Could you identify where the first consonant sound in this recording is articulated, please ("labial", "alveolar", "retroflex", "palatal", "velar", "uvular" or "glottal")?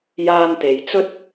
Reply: palatal